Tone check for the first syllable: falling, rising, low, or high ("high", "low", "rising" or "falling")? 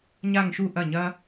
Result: falling